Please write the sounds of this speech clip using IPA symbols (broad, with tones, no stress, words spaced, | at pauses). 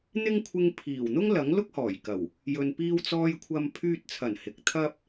n̪ɪ˥ŋkʷʰɪ˧ŋ pʰiː˨˩wn̪ʊ˥ŋ lɐ˨˥ŋlʊ˥k̚ hɔː˨˩jkɐ˨˩w | jɵ˨npiː˧wt͡sɔː˧j kʷʰɐ˧m pʰyː˧t̚t͡sʰɐ˨˩n hɪ˨k̚ t̪ʰɐ˥p̚